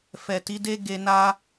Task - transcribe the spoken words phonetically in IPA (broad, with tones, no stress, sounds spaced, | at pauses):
f ɛ˨ t i˨˦ d e˦ ɡ e˧ n a˦